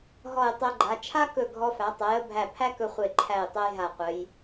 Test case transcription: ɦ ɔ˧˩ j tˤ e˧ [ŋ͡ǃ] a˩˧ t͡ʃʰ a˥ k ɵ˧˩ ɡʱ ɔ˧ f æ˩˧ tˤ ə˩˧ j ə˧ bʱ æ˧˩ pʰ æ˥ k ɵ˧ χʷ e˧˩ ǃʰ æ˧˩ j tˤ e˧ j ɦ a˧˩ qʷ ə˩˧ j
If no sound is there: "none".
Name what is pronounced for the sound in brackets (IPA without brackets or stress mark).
ɡ͡ǃ